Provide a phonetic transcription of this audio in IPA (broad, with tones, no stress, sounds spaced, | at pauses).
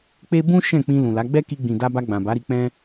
k͡p e˦ b ũ˦ ʃ ɛ̃˦˨ k͡p ĩ˧ l ũ˨ l a˨˦ ɡ͡b ɛ˦ k i˧ ɡ͡b ĩ˨ d a˧ b a˧ ɡ͡b ã˨ b a˨˦ ɾ i˧ k͡p ɛ̃˦